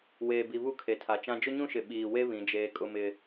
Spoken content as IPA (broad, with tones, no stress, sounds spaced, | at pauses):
w eː˨ b i˨ β u˦˨ kʰ e˨ tʰ a˨ t͡ʃ ã˦ d͡ʒ ʊ˦ ɲ ũ˦ ʃ ɪ˨ ɓ iː˨ w e˦ β ĩ˨˦ d͡ʒ eː˦ kʼ ʊ˦ m ɪ˦